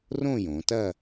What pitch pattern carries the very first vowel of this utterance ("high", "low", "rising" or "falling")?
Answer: falling